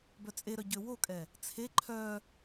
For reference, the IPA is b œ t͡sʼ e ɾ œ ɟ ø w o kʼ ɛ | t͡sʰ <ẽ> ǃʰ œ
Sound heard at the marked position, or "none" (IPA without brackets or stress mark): e